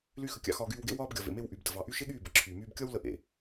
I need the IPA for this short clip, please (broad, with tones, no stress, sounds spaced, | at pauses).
l y˦ x ə˧ kʲ ɑ̰˦ x ɒː˧ ɡ yː˧ w ɡ ḛ˦ w ɒː˧ b ɡʲ ɒ˨ v ḛ˨ m e˧ w ʔ y˨ b d ə˨ v ɑ˨ ʔ y˧ ʃ e˦ ɠ yː˦˨ b ə˨˦ ǁʰ yː˨ m yː˧ b kʲ ɒ˦ w l ə˧ ʔ ḛ˨